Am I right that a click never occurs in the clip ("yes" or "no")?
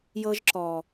no